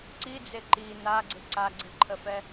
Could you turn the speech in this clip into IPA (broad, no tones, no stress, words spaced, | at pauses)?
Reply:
ǀid͡ze ǃi n̪aɡ͡ǀɪ ǀaɡ͡ǀɨǃʰəfɛ